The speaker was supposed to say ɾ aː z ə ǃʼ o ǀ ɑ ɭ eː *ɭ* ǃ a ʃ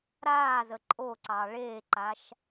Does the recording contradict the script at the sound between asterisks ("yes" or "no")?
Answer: yes